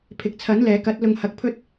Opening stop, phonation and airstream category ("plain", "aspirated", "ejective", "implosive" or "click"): aspirated